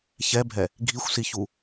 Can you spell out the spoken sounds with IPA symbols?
ç ɛ bʱ ɛ | ɡʱ i xʷ s i ç u

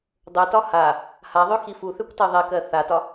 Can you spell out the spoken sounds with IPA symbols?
dˤ o t ɒ h a | h a ðˤ ø x i f u θ ø kʷ t ɜ ðˤ e k ɜ θ a t ɒ

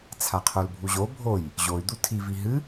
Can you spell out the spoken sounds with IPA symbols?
t͡sʰ a qʰ o l bʱ u ʑ o bʱ o j | ʑ o y̯ d̪ u tʰ i v i ɦ ɨ

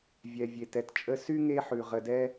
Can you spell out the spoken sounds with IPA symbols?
vʲ ɛ˩ vʲ e˩ t ɛ˦ t t͡ʃʼ ə˦ s y˥ ŋ e˦ ħ ʉ˩ ʁ ə˨ d ɛ˦

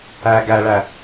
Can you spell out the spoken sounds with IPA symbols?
æ ɡ æ ɭ æ

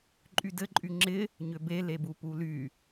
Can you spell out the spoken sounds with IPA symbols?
ǃʼ y d ɘ ǃʼ y ŋ͡ǁ ɪ | ɲ ʏ b e l e b u p u l y

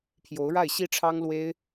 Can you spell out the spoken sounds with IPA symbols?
pʰ j o˧˥ ʊ̯ ɻ a˥˩ ɪ̯ ɕ i˥ ʈ͡ʂʰ ɑ˥ ŋ l w e˥ ɪ̯

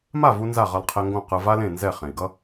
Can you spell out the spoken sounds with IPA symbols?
m a˥˩ v u˧ n z a˥˩ ʁ ʌ˧ l qʰ e˧ ŋ ɡ õ˥˩ q ɯ˧ v a˥ l ẽ˥˩ n z ɛ˥˩ χ ẽ˩ i̯ ɡ ʌ˥

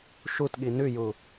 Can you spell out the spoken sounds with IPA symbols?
ʃ u t ɠ i n ʉ j u

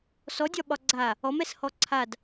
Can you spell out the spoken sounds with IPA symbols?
s ɔ dʲ ɒ ɓ ɒ ɡ͡ǀ a | ɔ m ɛ s h ɔ ǀʰ a d

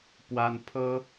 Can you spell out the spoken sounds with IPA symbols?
p w a˦ n pʰ ɤ˦

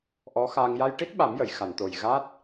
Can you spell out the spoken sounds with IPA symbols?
ʔ ɔ˧˥ x aː˧ ŋ j a˧ j ʈ i˦˥ t̚ ɓ a˨˩˦ m j ə˨˩˨ j x a˨˩˨ n t̪ o˨˩ j ɣ a˦˥ t̚

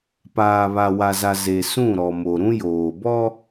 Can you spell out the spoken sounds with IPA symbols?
p aː˨ β a˨ w a˨ z a˨ z e˨ s ũ˦˨ ɾ ɔ˨ m o˨ ɾ ũ˦ j oː˨ b ɔ˦

